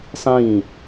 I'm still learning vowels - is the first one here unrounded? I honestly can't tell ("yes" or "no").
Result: yes